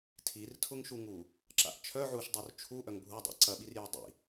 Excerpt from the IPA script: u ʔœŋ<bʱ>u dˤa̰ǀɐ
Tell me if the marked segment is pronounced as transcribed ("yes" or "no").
yes